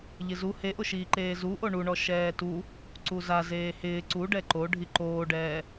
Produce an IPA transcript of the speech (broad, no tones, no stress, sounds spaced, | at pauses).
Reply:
ʎ ɪ z u h e ʔ ʊ ʃ iː ǃ eː z u ʔ o ɳ u ɳ ɔ ʃ ɛː t u | ǀ u z a z eː h ɪː ǀ u ɖ ɛ ǃ o ɖʱ i ǃ oː ɖ ɛː